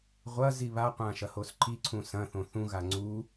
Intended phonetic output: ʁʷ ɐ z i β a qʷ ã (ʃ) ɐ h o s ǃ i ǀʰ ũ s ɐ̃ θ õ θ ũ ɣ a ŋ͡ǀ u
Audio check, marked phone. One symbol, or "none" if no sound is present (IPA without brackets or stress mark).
ʃ